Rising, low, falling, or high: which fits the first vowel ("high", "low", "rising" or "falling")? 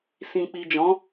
low